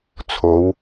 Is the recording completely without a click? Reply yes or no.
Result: yes